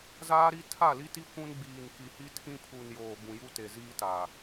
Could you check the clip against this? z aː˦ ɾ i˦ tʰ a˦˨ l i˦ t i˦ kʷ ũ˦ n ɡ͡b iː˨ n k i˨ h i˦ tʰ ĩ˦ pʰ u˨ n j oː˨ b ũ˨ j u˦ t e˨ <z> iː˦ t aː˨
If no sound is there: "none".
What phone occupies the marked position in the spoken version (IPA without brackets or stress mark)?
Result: z